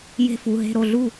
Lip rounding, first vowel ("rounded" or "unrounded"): unrounded